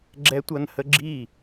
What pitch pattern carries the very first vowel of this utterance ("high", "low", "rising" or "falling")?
high